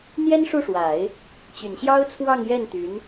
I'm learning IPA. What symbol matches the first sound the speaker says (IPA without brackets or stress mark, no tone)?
n̪